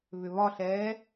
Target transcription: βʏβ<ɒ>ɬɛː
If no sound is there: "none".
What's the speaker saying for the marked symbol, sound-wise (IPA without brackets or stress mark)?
ɒ